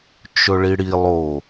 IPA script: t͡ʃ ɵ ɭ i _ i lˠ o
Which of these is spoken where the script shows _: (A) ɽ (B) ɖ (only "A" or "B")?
A